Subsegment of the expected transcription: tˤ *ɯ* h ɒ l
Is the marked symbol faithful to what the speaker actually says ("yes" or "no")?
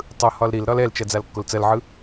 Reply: yes